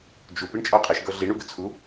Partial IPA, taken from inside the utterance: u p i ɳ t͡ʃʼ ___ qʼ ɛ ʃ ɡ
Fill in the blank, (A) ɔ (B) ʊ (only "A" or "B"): A